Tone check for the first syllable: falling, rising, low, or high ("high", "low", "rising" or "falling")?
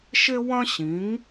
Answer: high